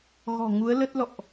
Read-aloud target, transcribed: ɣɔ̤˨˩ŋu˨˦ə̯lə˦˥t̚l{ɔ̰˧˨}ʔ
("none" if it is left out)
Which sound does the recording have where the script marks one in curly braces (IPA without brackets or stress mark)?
ɔ̰˧˨